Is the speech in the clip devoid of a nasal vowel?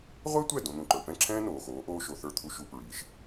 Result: no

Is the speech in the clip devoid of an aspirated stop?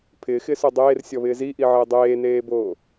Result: no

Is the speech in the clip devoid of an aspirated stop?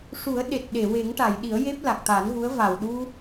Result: yes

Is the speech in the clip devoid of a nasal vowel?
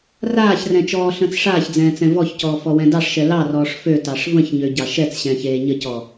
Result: no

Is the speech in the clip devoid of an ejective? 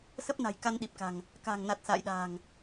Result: yes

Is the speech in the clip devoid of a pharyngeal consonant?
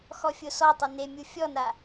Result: yes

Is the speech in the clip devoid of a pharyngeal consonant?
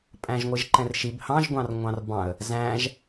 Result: yes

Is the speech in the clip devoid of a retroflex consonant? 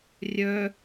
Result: yes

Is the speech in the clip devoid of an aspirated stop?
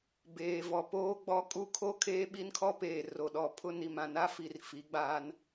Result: no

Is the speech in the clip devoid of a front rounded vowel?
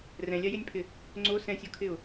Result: yes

